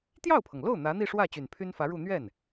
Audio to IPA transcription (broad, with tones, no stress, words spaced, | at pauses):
t̪jɑ˥˩ʊ̯pʰɤ˩ŋlo˥˩ʊ̯ n̪ä˧˥n̪i˥˧ʂwä˥˩ t͡ɕy˨˩npʰy˥nfä˧˥ɻu˥˧ n̪ɥɛ˥˩n